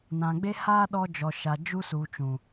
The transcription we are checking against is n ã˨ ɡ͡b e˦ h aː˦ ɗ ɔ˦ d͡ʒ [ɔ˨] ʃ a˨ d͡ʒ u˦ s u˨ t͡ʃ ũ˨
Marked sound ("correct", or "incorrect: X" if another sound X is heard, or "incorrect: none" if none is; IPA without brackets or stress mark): correct